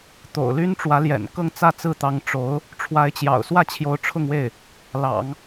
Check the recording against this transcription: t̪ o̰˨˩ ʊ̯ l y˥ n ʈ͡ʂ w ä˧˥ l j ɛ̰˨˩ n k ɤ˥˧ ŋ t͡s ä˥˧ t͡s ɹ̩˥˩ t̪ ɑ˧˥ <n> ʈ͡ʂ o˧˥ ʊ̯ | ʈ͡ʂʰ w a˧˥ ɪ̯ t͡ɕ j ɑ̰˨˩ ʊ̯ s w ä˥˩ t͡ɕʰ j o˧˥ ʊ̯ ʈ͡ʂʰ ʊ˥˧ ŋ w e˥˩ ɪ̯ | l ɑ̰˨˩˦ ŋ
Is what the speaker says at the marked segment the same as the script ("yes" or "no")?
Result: no